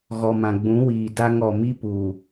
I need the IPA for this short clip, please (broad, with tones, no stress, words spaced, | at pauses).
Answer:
ɣɔ˨mã˨ɡ͡bũ˨˦ wiː˨da˦ŋ ɔ˨mi˦puː˨